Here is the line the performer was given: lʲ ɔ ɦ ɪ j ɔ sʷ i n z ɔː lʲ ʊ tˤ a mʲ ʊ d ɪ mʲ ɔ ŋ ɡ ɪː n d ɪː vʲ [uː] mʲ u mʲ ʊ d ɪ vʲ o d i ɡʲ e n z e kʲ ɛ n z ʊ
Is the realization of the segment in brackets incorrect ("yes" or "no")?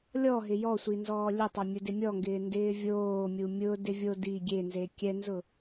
yes